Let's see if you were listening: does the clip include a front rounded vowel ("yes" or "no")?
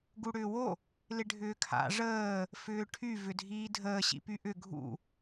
yes